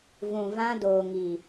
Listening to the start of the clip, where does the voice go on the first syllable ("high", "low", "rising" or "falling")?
low